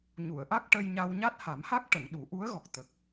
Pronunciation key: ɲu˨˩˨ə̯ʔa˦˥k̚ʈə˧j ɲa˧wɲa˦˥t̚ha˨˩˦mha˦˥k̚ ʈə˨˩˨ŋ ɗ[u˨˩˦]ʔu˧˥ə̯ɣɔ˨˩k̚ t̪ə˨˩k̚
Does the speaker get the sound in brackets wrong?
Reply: no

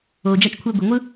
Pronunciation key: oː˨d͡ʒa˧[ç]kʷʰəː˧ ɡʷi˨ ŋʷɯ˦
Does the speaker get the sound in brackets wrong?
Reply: yes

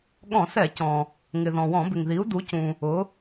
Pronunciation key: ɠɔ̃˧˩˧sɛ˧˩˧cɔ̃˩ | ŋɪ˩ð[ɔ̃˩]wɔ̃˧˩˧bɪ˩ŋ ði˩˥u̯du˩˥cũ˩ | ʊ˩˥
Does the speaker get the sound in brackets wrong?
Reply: no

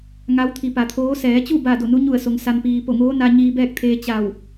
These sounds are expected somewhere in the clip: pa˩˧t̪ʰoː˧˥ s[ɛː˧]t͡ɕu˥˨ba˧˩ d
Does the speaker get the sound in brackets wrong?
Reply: yes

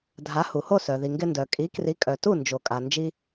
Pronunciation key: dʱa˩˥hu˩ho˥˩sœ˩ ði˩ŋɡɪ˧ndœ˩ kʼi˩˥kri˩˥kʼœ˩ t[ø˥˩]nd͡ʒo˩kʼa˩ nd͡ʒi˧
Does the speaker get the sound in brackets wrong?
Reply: yes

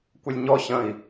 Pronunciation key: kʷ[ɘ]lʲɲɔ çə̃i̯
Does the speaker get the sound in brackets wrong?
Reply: no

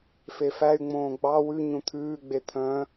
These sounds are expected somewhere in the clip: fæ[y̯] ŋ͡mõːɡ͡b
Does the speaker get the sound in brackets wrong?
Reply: no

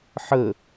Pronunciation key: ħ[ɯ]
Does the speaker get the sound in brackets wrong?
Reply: yes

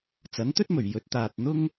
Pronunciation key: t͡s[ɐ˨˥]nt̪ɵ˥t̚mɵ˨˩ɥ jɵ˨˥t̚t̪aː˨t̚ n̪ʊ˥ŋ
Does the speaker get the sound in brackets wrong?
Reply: no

